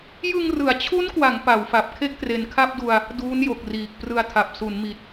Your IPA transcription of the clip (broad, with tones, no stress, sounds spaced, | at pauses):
j ɯ˧ ŋ r ɯ˩˦ a̯ t͡ɕʰ u˦˥ n k w a˩˦ ŋ p a˩˦ w f a˨˩ p̚ kʰ e˥˩ k̚ t r e˨˩ n kʰ a˥˩ p̚ d u˧ a̯ | d uː˦˥ n j o˨˩ k̚ r iː˨˩ k̚ p r ɯ˧ a̯ tʰ a˨˩ p̚ s u˩˦ n m i˨˩ t̚